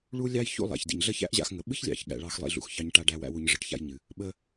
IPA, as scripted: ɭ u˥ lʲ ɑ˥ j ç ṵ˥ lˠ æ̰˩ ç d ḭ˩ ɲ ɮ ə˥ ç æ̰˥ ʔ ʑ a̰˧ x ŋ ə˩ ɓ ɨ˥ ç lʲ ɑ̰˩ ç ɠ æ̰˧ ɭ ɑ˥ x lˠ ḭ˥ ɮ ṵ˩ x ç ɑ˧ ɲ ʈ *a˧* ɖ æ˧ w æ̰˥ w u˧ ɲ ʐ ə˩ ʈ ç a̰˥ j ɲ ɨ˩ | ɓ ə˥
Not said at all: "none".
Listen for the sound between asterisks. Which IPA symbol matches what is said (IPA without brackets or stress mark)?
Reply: a˧